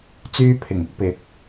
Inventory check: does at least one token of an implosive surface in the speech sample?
no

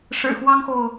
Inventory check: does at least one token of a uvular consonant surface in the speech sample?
no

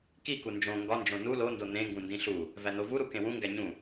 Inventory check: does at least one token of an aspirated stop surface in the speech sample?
no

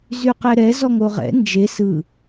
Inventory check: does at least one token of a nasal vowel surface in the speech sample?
no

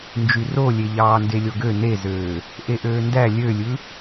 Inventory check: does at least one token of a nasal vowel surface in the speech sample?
no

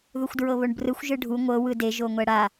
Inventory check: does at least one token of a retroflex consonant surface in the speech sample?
yes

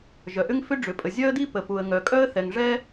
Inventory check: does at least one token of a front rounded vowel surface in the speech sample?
yes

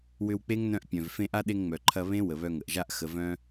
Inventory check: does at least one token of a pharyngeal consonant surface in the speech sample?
no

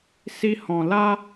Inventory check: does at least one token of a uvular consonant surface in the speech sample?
no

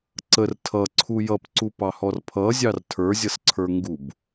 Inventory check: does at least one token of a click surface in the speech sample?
yes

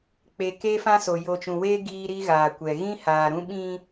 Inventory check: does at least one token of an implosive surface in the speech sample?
yes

